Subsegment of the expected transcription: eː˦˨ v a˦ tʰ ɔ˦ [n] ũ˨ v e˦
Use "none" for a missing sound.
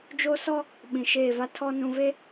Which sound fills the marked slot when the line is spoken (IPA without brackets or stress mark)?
n